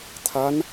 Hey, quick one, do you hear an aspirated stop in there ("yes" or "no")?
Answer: yes